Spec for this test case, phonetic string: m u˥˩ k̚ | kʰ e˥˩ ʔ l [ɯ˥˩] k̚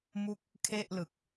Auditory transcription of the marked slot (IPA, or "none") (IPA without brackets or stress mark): ɯ˨˩